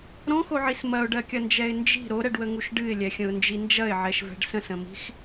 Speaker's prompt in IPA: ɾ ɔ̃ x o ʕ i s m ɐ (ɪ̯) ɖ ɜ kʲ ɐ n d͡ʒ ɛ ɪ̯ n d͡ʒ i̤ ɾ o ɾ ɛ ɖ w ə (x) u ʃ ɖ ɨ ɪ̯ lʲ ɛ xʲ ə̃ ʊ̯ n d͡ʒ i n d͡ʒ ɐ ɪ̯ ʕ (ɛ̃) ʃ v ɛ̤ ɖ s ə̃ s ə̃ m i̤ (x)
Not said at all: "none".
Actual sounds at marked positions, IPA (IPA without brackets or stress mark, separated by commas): ʊ̯, ŋ, ɛ, x